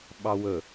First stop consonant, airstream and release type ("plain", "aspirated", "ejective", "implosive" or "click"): implosive